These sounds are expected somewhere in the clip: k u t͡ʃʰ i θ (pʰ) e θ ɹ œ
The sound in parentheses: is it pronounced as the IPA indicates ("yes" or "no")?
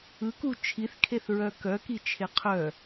no